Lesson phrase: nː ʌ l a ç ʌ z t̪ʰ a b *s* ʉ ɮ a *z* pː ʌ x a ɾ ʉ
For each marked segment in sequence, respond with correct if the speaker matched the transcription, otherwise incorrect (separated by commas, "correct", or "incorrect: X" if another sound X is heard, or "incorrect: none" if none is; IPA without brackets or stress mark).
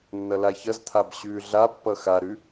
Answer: incorrect: ɕ, incorrect: none